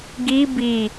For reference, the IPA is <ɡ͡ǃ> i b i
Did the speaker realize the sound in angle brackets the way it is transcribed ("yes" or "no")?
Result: no